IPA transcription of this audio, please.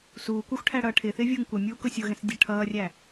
s uː kʷ ɑ xʷ ʈʰ æ ɽ ʌː ʈʰ ɪː θ ɪː vʲ ʊː ŋ kʷ ʌ mʲ uː k ʊ sʲ ʊ ɣ ɛ̃ s dʲ ɜ ʈʰ ʌː rʲ æ

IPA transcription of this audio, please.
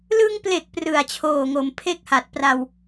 l ɯ˧ ŋ p l e˨˩ k̚ p r ɯ˨˩ a̯ t͡ɕʰ oː˨˩ ŋ o˩˦ m pʰ e˥˩ k̚ h a˨˩ t̚ p r a˧ w

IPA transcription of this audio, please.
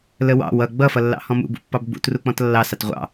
l ə w ɑ̰ w ʌ ɡ͡b ʌ f ʌ lː ɑ̰ h ɔ̃ m ṵ b ṵ pː ɑ b ɡ͡b ṵ t r u k͡p ɔ̃ t lː ɑ s ɑ t ʁʷ ɑ̰

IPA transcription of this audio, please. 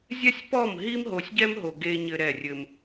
zʲ ɛ˦ sʲ p ɔ˦˨ m ɦ i˦ m ɦ o˨ sʲ ɟ ɛ˦ m ɦ o˨ ɡ e˦ ɲ ɘ˦ ɾ ɛ˦˨ rʲ ɘ˦ m

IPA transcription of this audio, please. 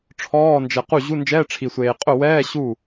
ʈ͡ʂʰ ɔː˧˥˧ n d͡ʒ ɛ˨ q u˥˩ ʑ u˧˥˧ n d͡ʒ ɛː˧˥˧ ʈ͡ʂʰ i˨ sʷ eː˨ qʼ ʊ˥˩ w ɛː˧˥˧ ɕ u˥˩

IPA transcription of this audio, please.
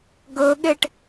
ɡ ɵ ɠ e ʈ

